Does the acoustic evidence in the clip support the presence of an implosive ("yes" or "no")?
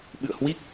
yes